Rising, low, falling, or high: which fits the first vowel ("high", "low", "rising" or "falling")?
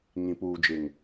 low